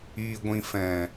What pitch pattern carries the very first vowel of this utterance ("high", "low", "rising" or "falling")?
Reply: low